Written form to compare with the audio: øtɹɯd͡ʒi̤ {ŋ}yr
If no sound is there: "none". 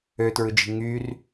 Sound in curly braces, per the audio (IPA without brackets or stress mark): ŋ